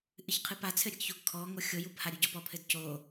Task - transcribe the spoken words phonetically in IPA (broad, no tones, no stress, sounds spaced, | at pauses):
ʔ ɨ ç qʰ ɨ p a t͡sʰ ɘ ɾʲ ɘ ɡ ç o ɡ kʰ ɔ ŋ o xʲ o j u b h a ɾʲ u ɟ ɔ p ɔ pʰ ɘ d c o